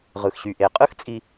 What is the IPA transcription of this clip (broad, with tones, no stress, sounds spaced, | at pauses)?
ʁ ɯ˨ x ɕ y˨ ʔ e˨˦ qʼ ɯ˦ x t͡sʼ i˨